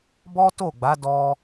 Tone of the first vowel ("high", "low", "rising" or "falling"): high